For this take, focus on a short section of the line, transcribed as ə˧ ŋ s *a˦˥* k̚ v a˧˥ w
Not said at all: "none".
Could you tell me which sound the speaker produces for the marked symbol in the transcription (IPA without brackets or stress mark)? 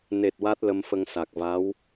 a˨˩